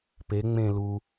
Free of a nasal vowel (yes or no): no